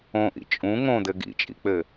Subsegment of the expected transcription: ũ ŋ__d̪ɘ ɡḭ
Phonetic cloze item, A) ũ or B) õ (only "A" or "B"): B